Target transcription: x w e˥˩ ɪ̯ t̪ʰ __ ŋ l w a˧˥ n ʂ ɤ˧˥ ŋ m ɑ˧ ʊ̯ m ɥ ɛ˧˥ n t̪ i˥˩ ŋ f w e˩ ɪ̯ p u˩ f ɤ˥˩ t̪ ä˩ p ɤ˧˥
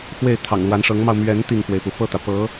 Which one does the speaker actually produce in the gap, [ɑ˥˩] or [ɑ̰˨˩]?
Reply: ɑ̰˨˩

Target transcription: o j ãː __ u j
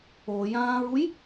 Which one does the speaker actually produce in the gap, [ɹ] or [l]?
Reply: ɹ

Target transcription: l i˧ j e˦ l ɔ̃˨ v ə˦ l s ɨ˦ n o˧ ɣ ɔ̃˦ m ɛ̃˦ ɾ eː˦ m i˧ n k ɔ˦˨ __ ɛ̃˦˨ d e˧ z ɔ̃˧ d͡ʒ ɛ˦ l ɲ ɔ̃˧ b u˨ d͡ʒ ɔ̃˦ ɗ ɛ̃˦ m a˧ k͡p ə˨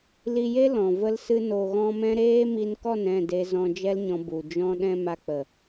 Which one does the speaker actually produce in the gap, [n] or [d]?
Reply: n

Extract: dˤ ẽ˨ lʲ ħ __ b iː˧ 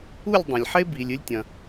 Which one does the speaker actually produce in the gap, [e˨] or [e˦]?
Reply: e˦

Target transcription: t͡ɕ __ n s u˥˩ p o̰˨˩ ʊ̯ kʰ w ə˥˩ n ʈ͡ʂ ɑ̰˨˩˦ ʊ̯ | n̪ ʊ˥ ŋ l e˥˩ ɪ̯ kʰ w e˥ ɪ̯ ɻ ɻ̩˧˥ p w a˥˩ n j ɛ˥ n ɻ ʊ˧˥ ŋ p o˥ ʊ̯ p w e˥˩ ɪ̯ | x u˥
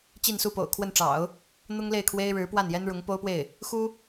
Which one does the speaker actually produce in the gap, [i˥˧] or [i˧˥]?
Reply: i˥˧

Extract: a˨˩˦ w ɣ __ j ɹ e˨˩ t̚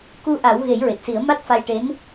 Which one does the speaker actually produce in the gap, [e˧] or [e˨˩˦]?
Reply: e˨˩˦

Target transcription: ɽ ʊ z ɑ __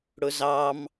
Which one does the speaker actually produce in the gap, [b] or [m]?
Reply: m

